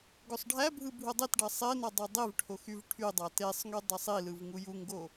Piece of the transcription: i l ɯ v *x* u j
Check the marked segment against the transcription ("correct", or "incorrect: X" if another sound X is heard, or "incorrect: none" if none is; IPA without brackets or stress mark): incorrect: ŋ